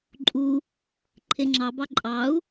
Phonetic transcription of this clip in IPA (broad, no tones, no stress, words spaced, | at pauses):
ǃʼu | ǃʰeŋ͡ǁɑbɑ ǃʼɑu̯